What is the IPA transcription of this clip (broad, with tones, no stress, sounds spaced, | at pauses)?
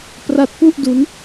p r a˦˥ t̚ p u˥˩ ʔ d u˦˥ n